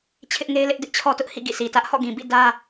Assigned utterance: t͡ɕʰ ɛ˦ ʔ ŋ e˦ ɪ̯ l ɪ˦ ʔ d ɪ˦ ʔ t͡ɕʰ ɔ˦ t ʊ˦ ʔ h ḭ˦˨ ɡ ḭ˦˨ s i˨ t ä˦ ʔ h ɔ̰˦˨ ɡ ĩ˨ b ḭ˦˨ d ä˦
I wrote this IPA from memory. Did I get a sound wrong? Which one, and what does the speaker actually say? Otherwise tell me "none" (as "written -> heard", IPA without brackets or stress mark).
ɛ˦ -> ɪ˦